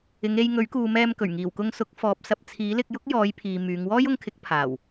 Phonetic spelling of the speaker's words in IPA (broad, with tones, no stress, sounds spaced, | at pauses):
ɪ˨˧ ŋ e˧ j ŋ ɵ˨˥ ɥ k uː˨ m ɛː˧ m k ɵ˨˩ ɥ ŋ iː˨˩ w k ʊ˧ ŋ s ʊ˨˥ k̚ f ɔː˨˥ p̚ s ɐ˨ p̚ t͡sʰ iː˨˥ l ɪ˧ k̚ j ʊ˥ k̚ j ɔː˨˧ j pʰ iː˨ m yː˨˧ ŋ w ɔː˥ j ʊ˧ ŋ kʰ ɪ˨˥ k̚ pʰ aː˨˩ w